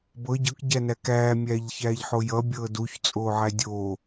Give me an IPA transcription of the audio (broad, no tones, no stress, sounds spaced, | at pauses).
b ɤ ɟ ɤ k ɟ æ n æ k æː mʲ æː ʎ ç æː ʎ ħ o j ʌ bʲ ɤː d u ç t͡sʼ oː ʕ æ dʲ oː